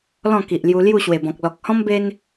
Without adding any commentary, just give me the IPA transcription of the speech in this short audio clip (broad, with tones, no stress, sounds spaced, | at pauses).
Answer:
l ɔ̃˥˧ k i˨ ʔ l j u˧ l j u˥˧ ɕ w e˨˩ b ɔ̃˨ k̚ l ɔ˨ k̚ h ɔ̃˦ m b e˧ n